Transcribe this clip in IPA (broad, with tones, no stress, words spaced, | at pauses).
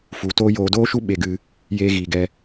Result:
fu˧ toː˦ joː˧doː˦ʃu˦ ɓe˧ɡɨ˧ | jeː˦ɣiː˧ ɡɛ˧